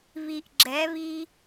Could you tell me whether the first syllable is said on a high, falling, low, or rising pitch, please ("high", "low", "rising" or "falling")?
low